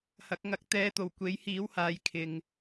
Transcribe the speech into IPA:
h ɐ˨˥ k̚ ŋ ɐ˧ k̚ t̪ ɛː˧ t̪ o˨˩ w kʷ e˨˥ j h iː˨˥ w h aː˨˧ j kʰ ɪ˨ ŋ

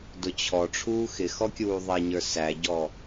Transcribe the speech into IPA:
d ʊ t͡ɕʰ ɔ ʈ͡ʂʰ uː x ɪ x ɔ kʲ uː ðˤ ɛ ɲ ə˞ s æ ɟ ɔ

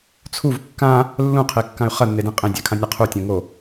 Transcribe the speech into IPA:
t͡sʰ u v kː ã | lː ũ qʰ e kː ã y̯ χ ɐ nː e d ĩ qʼ ẽ dʲ a kʰ ã nʲ a qʰ u tʲ õ ŋ o

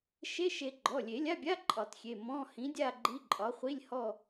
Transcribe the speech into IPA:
ʃ e˧˥˧ ʃ e˨˩˦ ɡ͡ǃ ɔ˩˧˩ lʲ e˨˩˦ lʲ a˧˥˧ bʲ a˧˥˧ ǃʼ ɒ˨˩˦ t xʲ e˩˧˩ m ɔ̃˧˥˧ h ĩ˨˥ dʲ a˥˧ ɡ͡ǃ i˧˥˧ ǃʼ ɒ˨˥ χʷ i˧˥˧ lʲ h ɔ˥˧

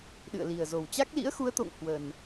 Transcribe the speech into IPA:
ɗ ɨ̰˧˨ ə̯ l i˨˩ ə̯ z o˨˩ w t͡ɕ a˦˥ k̚ l ḭ˧˥ ə̯ x u˨˦ ə̯ t̪ o̰˧˨ ŋ h w ə˨˩ n

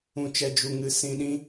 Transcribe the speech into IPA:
ũ˨ t͡ʃ ɛ˨ d͡ʒ u˨ ŋ ɨ˨ s ĩ˨ ɗ ĩ˧

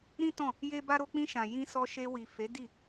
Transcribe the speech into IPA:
ɾ ĩ˦ t ɔ̃˦˨ | j e˦ b a˦ ɾ o˦ k͡p ĩ˧ ʃ ã˨ j ĩ˧ s ɔ˧ ʃ e˧ w i˨ f e˨˦ d i˦˨

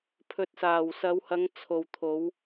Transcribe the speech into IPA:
pʰ ɵ˨ t̚ s aː˨˩ w s ɐ˨˧ w h ɐ˨˧ ŋ t͡sʰ o˨ w t̪ʰ o˨˧ w

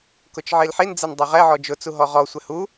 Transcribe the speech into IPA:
k ʊ t͡ʃ ʕ i l ħ i n d͡z ɛ n dˤ ʊ ʁ ɛ ʕ ɔ d͡ʒ ʊ t͡s u ɦ ɔ ʁ ɔ sʷ ɛ h u

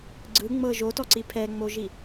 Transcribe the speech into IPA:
ɡ͡ǀ ɯ ŋ͡m ɤ ʒ o t ɔ ǀ i pʰ ɛ ŋ͡m o ʒ i

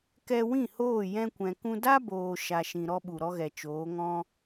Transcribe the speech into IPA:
k ɛ˧ w ĩ˦˨ h oː˦˨ j ɛ̃˧ kʷ ɛ̃˨ k ũ˧ d a˦ b oː˨ ʃ a˨ ʃ ĩ˨ ɾ ɔ˦ ɓ u˨ ɾ ɔ˦ ɣ ɛ˨ t͡ʃ oː˨˦ ŋ ɔ̃˦

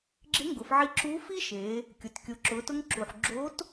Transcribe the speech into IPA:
ɡ͡ǁ ɪ˧˥ ŋ ɡ ʊ˩˧ f ʕ i˧ ǁ u˧˥ f i˥ ʃ e˩˧ | kʲ ʊ˩ t kʲ ʊ˩˧ ǁ ʊ˩˧ t ʊ˧ ŋ ǁ u˩ ħ ɡ͡ǁ o˧˥ t

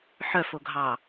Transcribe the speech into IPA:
ħ œ f o ɡʱ ɑ

